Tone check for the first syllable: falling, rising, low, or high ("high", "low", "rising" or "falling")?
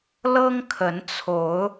high